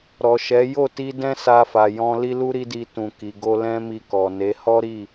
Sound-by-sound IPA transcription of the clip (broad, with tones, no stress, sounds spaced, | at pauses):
ɾ ɔ˨ ʃ ɛ˨˦ j o˦˨ t i˧ d ɛ̃˦ s a˧ f a˨ j ɔ̃˧ l i˦ l u˦ ɾ i˦ d i˧ t ũ˨ k i˨ ɡ o˧ l ɛ̃˦ m i˧ k ɔ˨ n e˨˦ h ɔ˦ ɾ i˦˨